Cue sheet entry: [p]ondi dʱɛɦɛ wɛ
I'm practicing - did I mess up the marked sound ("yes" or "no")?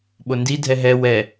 yes